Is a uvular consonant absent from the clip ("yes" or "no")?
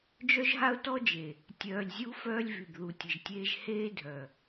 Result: yes